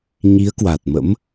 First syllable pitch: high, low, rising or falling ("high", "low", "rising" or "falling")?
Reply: rising